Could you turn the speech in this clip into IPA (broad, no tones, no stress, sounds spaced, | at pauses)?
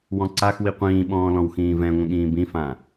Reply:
w ɔ̃ ǀ a x w i qʷ ĩː ɓ ɔ̃ː l ɔ̃ w x ĩː v ɛ̃ ŋʷ ə̃ ɠ ĩː b ĩ f ã